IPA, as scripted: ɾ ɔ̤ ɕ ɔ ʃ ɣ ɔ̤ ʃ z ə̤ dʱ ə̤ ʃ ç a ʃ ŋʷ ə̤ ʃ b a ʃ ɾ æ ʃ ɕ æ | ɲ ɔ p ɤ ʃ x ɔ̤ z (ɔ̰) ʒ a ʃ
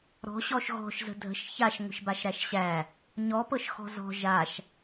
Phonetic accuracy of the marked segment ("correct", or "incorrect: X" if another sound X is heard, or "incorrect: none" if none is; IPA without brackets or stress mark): incorrect: ɔ̤